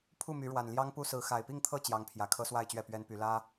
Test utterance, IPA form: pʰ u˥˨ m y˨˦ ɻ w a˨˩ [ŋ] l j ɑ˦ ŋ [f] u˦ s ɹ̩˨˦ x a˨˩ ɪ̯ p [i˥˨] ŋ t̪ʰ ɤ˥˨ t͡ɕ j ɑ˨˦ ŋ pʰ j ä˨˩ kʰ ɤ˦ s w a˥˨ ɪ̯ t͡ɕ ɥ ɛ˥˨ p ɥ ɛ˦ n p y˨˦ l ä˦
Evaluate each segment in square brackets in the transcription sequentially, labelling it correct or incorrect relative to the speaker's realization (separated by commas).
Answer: incorrect, incorrect, correct